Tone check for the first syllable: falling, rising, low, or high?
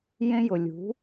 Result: high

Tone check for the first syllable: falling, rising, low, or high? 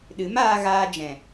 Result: rising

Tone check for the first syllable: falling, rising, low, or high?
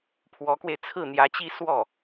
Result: rising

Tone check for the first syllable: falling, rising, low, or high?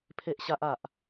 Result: high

